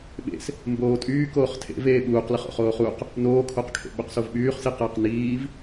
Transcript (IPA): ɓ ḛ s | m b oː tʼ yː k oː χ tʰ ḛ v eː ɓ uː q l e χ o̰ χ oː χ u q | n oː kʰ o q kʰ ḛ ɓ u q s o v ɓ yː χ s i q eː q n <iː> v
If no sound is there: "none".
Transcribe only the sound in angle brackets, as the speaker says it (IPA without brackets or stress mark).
iː